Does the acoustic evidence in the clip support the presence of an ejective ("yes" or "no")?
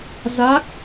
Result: no